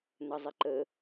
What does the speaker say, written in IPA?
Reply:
nəzˤɪǃə

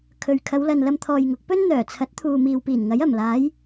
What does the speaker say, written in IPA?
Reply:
kʰɵ˨ɥ kʰɐ˨˧wlɐ˨n lɐ˧mt̪ʰɔː˨jŋʊ˨˥k̚pɵ˥n n̪œː˨˩t͡sʰɐ˨˥t̚ t̪ʰuː˨miː˨wpiː˨˩nŋɐ˨˥j ɐ˨˩mlaː˨˧j

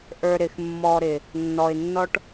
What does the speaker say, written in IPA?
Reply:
ʔə˞˧ɾɪ˨xmːɔ˧ɾɪ˨ | nːɔ˨ɪ̯nːɔ˦ʈ

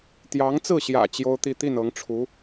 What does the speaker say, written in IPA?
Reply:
t̪jɑ˧˥ŋt͡sɹ̩˥˩ɕjä̰˨˩ t͡ɕjo˥ʊ̯t̪i˥˧ t̪i˥˩nɤ˧˥ŋʈ͡ʂʰu˧˥

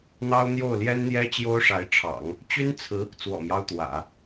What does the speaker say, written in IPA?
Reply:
n̪ɑ˥ʊ̯ n̪jo˥˩ʊ̯ljɛ˥nn̪jɛ˥ t͡ɕjo˥ʊ̯ʂa˧˥ɪ̯ʈ͡ʂʰɑ̰˨˩˦ŋ | t͡ɕy˥nt͡sʰɹ̩˧˥ | t͡swɔ̰˨˩mjɑ˦ʊ̯ t̪wä̰˨˩˦

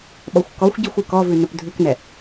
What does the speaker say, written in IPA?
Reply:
ɓɔxʷkɔxʷɟixʷ ʉkɔvʉ nɵpdʱʉknɛ

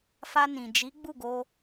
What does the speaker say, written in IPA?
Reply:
fa˧nĩ˨ d͡ʒi˨˦ ɡ͡bu˦˨ɡo˧

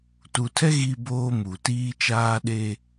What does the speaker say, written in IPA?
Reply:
tu˨tʰɛ˦ ɣi˦boː˦ mu˨tiː˦ t͡ʃaː˦ɗeː˦

